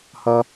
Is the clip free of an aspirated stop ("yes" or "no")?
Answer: yes